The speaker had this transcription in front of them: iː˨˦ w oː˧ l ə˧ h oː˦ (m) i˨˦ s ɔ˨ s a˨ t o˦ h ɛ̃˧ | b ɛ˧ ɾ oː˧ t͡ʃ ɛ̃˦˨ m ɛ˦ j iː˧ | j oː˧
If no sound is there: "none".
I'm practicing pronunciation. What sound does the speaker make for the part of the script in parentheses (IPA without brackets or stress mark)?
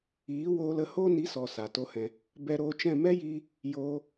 n